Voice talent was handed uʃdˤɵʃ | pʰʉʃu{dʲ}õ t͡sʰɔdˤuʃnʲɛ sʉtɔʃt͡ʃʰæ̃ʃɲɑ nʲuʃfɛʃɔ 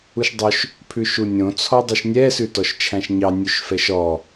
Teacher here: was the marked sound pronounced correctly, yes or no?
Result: no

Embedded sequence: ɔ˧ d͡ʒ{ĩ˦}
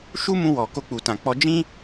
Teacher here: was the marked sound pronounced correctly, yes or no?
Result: yes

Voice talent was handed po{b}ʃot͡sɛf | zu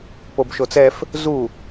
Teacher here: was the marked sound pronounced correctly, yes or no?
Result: yes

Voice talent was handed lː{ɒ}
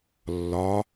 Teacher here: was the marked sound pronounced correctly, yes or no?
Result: yes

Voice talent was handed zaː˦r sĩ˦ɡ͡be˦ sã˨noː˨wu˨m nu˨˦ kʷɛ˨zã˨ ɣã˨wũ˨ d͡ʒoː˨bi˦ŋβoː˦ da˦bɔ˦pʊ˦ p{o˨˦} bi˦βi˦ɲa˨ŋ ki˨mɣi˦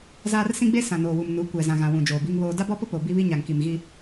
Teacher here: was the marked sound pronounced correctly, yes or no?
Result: no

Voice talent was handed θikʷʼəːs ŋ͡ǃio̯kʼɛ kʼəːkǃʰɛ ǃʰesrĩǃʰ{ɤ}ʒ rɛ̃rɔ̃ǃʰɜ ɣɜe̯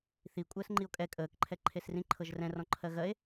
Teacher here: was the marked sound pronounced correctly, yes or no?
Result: yes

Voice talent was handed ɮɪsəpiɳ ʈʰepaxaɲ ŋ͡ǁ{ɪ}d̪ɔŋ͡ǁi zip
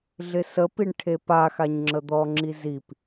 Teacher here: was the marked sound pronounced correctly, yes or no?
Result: no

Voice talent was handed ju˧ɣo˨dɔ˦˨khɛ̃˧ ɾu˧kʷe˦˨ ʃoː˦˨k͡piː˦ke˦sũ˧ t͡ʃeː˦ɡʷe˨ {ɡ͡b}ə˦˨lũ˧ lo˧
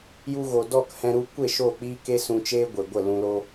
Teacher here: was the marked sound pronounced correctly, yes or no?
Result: no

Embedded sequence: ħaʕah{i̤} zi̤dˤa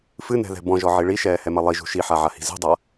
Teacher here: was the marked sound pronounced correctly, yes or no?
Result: yes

